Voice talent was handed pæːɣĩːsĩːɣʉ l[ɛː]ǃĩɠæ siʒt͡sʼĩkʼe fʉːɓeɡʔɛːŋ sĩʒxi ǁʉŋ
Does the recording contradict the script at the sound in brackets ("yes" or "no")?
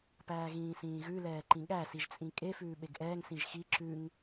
no